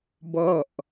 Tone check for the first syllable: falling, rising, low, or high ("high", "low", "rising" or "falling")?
falling